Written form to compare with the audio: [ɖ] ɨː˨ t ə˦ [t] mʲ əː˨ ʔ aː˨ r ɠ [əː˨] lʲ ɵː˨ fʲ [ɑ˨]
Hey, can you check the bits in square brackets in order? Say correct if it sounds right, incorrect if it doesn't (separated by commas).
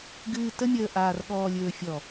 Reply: incorrect, incorrect, incorrect, incorrect